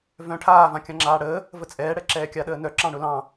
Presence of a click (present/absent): present